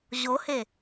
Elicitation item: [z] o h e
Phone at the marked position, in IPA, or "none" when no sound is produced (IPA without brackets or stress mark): ʑ